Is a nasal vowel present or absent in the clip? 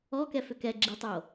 absent